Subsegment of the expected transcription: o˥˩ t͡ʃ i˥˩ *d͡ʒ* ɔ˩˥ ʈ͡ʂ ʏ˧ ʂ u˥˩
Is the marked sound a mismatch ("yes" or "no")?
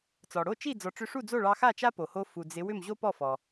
yes